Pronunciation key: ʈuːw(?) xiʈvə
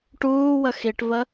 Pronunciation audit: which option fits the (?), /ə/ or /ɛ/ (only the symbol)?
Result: ə